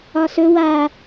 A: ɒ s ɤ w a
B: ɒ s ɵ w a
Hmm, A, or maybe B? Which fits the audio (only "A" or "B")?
B